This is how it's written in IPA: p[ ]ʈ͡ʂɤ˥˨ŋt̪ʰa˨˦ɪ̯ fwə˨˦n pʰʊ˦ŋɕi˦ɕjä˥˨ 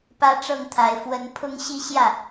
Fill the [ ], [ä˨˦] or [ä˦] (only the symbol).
ä˦